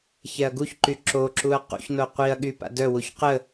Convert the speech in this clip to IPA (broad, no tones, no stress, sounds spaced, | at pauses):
ç ɛ ɐ̯ ɡ u ç ǃ y ǁ o ǁ u ɐ̯ q ṵ ç n o qʷ i ɐ̯ ɠ y p a̰ d œ w u ç q ə